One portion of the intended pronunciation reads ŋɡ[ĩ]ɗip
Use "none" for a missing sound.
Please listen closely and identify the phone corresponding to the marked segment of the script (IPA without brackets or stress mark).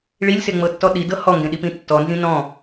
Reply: ẽ